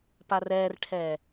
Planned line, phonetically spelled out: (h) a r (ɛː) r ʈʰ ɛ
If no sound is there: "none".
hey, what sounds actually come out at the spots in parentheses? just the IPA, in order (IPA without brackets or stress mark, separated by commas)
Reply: p, ɛː